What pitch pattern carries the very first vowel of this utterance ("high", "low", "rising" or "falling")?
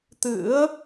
rising